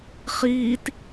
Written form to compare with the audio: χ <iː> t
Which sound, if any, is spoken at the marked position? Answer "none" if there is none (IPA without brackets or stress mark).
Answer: iː